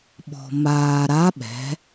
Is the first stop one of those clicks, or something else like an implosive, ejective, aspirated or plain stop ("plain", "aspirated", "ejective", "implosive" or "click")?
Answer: implosive